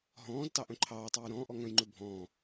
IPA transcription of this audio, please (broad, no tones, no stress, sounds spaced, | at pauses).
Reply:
ɦ ɔ̃ː z t ɑ ʔ œ̃ ǃʰ ɑː tˤ eː j ɾ ɔ̃ː ʔ ɔ ŋ œ̃ j ŋ͡ǃ ʉ bʱ ɔ̃ː